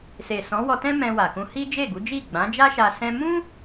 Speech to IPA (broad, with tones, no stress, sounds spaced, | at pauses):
s e˨ s ɔ̃˨˦ w ɔ˧ t ɛ̃˦ m ɛ̃˧ w a˨ k ũ˧ h i˦ d͡ʒ e˦˨ ɡ u˨˦ d͡ʒ i˦˨ ɡ͡b ã˨˦ d͡ʒ a˦ ʃ a˧ s ɛ̃˧ m ũ˦